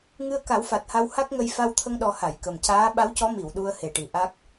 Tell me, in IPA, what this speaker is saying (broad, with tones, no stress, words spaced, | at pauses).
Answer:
ŋɨ˧ə̯ka˨˩˦wfa˨˩t̚ha˧w ha˦˥k̚ŋə˧j fa˧wt̪ʰə˧ŋɗɔ˨˩˦ ha˨˩˨jkə˨˩mcaː˧˥ ɓa˧˥wcɔ˧˥ mi˨˩˨wɗu˧ə̯he˨˩ʈi˨˩ ʔa˦˥k̚